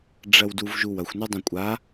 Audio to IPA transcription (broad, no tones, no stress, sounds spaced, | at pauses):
ɖ͡ʐ ɐ w d u v ʒ u w ɐ xʷ n y dˤ ɐ̃ kʷʼ a